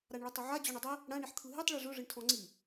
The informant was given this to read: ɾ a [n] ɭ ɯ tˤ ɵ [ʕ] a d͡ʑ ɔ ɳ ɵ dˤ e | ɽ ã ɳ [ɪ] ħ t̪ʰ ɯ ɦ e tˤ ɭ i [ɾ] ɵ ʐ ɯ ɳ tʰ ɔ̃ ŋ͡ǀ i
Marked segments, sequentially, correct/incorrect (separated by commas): incorrect, correct, incorrect, incorrect